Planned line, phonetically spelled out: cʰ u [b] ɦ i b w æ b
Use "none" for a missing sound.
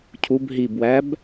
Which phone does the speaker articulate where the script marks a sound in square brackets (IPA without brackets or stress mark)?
b